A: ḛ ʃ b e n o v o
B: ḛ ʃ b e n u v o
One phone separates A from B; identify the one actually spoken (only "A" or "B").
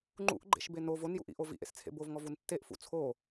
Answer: A